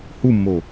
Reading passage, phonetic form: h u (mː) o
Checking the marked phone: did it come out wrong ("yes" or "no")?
no